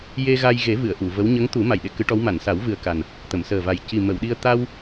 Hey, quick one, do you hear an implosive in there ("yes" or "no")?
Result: yes